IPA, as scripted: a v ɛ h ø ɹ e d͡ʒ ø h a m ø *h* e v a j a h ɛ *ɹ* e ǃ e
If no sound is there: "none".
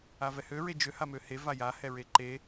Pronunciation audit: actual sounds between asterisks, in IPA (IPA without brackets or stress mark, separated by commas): h, ɹ